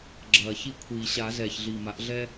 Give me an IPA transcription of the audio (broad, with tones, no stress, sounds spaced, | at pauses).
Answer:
ɡ͡ǁ ɐː˨˩ ç i˦˨ kʷʰ iː˨˩ ɕ a˨˩˦ z ɛː˨˩ ç ɮ iː˨˩ m a˩˥ ʔ ɮ ɛː˦